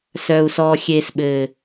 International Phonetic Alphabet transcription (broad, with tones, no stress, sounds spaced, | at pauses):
s œ˨ u̯ s ɔ˨ xʲ e˨ s ɓ ɘ˨